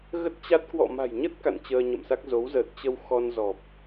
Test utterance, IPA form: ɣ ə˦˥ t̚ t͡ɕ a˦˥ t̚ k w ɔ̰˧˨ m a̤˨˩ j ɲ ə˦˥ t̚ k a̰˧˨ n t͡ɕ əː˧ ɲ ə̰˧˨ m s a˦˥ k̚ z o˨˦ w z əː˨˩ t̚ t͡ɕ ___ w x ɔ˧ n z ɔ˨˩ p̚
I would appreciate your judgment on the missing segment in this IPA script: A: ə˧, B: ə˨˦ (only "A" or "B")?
A